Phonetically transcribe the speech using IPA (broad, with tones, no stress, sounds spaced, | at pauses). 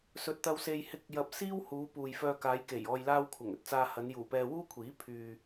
s ɵ˨ t̚ t̪ ɐ˧ w s e˧ j h ɪ˧ k̚ j ɐ˧ p̚ s iː˥ w h uː˨˧ p uː˨ j f œː˧ k aː˨˧ j k e˨˩ j ɔː˨ j l aː˧ w kʷʰ ɐ˨˩ ŋ ɵ˧ t̚ t͡s aː˧ h ɐ˨˧ n j uː˨˩ p ɛː˧ w uː˥ kʷʰ iː˨˥ pʰ yː˨